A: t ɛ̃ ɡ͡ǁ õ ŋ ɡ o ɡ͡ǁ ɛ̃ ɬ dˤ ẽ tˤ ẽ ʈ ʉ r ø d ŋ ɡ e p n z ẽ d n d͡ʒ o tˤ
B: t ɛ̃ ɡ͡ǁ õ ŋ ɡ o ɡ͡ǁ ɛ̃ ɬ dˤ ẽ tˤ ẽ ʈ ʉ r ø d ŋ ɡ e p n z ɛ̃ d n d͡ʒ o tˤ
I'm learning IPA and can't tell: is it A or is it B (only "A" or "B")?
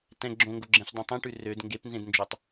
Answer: A